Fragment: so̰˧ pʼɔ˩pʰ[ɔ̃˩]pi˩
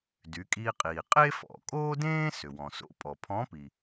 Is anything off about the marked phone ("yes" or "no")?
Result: yes